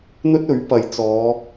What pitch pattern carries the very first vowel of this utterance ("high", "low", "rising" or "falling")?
high